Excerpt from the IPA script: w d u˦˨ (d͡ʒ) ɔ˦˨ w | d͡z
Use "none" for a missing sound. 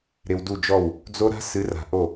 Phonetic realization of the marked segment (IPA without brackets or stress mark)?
d͡ʒ